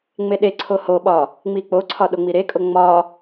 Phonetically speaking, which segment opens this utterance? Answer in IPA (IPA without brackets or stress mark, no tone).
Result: ŋ͡m